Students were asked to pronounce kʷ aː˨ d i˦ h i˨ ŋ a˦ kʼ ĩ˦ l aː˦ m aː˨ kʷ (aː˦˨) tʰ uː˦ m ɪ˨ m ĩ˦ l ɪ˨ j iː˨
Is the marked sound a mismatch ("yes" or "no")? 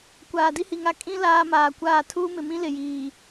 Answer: no